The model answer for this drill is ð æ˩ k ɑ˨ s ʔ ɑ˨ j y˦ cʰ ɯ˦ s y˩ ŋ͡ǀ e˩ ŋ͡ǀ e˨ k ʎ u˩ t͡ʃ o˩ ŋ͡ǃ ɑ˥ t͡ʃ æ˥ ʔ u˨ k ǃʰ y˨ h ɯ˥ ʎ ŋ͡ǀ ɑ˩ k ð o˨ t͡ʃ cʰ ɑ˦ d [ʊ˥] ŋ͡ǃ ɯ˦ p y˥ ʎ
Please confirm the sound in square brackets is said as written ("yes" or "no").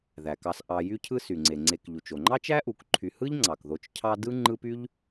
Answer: no